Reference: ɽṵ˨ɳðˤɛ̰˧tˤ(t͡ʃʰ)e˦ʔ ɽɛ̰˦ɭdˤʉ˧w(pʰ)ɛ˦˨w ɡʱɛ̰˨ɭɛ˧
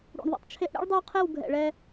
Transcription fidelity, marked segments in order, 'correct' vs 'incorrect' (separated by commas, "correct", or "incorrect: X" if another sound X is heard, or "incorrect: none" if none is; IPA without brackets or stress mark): correct, incorrect: qʰ